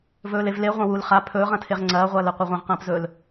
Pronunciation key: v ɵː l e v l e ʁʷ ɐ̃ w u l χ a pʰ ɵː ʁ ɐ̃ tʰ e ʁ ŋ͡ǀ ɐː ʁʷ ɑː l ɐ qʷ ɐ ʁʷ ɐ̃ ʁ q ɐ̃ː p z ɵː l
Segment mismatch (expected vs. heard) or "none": ɑː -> ɐː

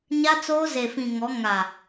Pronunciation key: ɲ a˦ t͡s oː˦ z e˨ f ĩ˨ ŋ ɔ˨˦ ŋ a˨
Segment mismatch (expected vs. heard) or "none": none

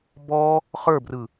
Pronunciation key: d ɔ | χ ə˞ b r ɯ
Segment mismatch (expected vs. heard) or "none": d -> b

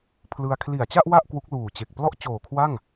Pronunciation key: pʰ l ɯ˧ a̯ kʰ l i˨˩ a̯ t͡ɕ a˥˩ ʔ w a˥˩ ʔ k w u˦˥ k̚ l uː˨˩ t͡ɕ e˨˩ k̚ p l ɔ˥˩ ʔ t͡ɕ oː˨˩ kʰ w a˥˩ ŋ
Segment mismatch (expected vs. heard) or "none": none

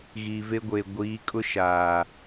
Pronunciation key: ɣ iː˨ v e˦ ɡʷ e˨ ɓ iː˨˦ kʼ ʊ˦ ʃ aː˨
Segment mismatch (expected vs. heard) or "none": ɓ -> ɡʷ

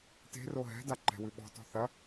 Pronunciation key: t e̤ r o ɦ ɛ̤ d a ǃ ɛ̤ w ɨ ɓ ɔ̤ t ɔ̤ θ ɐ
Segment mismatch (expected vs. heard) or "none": none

